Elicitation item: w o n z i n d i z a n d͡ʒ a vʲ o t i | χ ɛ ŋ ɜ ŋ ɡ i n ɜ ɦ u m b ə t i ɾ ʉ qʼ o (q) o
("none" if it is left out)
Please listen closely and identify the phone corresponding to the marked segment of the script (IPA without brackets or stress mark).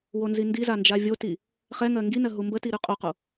q